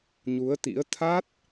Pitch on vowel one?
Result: rising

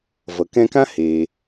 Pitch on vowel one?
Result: low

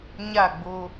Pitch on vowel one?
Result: falling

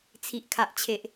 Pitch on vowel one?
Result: low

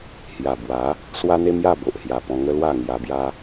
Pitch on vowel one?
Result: low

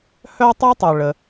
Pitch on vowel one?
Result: high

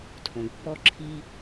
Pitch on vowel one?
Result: low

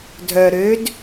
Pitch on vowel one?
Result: low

